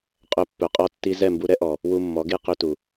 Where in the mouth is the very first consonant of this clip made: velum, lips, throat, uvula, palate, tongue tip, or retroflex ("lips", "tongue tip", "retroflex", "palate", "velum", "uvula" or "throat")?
uvula